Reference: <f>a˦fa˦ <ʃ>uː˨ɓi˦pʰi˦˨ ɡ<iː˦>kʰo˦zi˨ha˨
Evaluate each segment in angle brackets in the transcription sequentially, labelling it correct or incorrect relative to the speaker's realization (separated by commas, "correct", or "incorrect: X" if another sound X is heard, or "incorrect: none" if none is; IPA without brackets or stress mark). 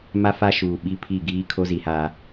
incorrect: m, correct, correct